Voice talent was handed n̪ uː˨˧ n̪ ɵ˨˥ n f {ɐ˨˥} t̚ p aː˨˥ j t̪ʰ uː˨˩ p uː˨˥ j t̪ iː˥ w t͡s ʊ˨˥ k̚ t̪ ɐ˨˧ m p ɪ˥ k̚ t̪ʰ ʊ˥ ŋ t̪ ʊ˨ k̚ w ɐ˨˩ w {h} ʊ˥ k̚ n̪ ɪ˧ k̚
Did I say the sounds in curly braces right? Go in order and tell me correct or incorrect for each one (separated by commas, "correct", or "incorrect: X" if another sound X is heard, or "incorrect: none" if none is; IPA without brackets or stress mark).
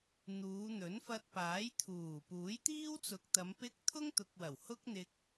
incorrect: ɐ˧, correct